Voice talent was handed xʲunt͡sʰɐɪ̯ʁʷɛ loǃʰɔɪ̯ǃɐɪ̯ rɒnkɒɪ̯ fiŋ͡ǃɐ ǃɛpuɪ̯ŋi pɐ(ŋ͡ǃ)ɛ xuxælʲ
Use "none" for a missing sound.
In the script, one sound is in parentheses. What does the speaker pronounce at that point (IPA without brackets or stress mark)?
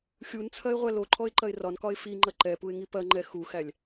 ŋ͡ǃ